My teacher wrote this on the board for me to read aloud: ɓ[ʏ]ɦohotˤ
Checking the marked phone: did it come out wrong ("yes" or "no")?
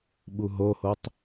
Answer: yes